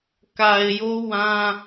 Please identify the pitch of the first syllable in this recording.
low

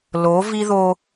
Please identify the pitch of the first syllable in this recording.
rising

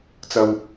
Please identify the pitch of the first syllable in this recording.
low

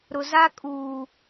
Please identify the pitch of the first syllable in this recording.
low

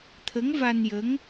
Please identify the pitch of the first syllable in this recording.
rising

